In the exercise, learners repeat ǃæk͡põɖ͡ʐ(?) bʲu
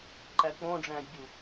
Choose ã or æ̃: æ̃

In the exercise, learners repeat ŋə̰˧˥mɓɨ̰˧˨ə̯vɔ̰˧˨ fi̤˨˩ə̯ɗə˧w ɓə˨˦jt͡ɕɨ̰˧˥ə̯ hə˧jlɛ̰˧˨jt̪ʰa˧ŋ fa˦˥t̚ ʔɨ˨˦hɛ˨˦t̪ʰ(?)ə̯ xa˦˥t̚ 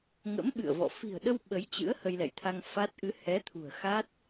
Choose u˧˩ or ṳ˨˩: ṳ˨˩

